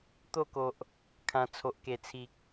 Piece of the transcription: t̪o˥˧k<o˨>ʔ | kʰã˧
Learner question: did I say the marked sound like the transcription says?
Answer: yes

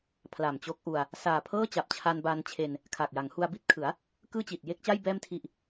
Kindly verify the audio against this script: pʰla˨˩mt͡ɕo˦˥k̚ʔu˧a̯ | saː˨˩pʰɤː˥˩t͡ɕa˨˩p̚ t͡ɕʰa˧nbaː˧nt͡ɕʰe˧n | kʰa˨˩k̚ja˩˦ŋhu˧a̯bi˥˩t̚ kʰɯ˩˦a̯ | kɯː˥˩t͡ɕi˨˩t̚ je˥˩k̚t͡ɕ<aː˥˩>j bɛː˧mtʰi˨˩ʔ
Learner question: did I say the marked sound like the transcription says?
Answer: no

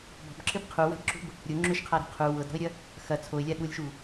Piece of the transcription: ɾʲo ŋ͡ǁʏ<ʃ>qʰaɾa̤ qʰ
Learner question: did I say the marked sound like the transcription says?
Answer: yes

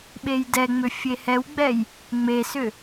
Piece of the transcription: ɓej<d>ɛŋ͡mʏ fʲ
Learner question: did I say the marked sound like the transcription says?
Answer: yes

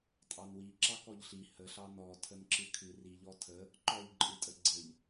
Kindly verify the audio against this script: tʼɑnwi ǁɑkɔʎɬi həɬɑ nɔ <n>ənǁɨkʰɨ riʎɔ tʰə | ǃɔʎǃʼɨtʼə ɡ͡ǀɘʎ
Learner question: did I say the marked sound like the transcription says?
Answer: no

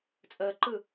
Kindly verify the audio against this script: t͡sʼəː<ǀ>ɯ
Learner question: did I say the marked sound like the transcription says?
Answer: no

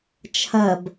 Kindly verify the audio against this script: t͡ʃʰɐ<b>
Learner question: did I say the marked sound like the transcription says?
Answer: yes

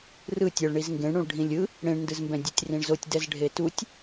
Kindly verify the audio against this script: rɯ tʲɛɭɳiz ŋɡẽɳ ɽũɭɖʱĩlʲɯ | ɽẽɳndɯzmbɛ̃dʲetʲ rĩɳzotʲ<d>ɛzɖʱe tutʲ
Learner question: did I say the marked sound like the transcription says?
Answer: yes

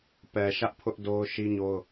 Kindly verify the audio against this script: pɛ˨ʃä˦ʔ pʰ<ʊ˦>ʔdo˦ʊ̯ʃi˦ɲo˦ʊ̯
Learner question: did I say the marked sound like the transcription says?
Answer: yes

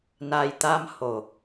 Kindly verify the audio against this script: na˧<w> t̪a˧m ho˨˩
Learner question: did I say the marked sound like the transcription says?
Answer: no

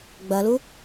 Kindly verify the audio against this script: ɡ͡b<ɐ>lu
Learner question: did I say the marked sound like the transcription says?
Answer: yes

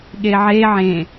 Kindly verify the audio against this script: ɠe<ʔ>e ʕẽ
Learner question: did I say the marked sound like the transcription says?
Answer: no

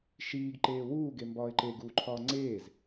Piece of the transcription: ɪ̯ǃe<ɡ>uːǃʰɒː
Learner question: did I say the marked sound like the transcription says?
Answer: yes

